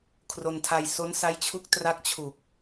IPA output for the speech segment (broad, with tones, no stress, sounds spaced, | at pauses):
kʰ r o˧ n tʰ a˧ j s o˦˥ n s a˦˥ j t͡ɕʰ u˦˥ k̚ t r a˦˥ k̚ t͡ɕʰ u˨˩ k̚